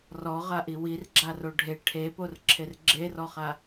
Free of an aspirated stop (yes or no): no